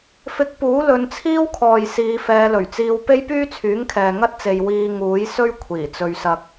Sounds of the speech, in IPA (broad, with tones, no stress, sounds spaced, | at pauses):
f ɪ˧ k̚ p uː˨˥ l ɵ˨˧ n t͡sʰ iː˥ w kʰ ɔː˨ j s iː˨˧ f ɛː˨˧ l ɵ˨˩ ɥ t͡s iː˧ w p e˥ j p yː˥ t͡sʰ yː˨˥ ŋ kʰ ɛː˨ ŋ ɐ˥ t̚ t͡s e˨ j w iː˧ ŋ uː˨˥ j s ɵ˥ ɥ kʷʰ iː˨˩ t͡s ɵ˧ ɥ s ɐ˧ k̚